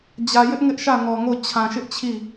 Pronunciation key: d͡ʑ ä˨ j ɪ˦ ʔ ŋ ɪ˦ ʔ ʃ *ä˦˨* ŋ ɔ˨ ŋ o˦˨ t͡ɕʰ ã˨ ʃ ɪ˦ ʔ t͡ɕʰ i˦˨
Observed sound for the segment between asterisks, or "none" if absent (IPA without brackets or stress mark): ä˦˨